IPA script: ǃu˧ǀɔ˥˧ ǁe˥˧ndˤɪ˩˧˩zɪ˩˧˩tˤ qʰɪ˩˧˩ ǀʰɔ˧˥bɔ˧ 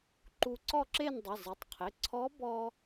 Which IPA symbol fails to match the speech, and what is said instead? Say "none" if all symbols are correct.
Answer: none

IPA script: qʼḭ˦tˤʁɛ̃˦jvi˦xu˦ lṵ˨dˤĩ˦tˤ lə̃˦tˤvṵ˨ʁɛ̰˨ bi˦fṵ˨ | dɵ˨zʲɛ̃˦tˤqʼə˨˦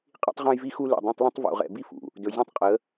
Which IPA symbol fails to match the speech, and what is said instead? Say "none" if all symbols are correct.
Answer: none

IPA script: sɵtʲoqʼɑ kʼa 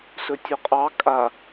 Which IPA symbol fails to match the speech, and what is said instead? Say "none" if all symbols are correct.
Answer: o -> ɵ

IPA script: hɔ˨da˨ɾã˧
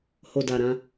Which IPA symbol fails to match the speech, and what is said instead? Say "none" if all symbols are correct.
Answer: ɔ˨ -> o˨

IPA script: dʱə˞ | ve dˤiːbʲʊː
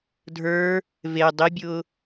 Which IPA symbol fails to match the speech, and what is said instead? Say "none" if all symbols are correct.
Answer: iː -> i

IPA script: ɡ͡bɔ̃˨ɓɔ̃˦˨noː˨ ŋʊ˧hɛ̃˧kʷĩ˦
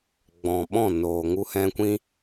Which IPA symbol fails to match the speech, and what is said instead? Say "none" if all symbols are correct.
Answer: ʊ˧ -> u˧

